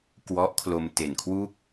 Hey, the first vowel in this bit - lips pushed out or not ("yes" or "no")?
yes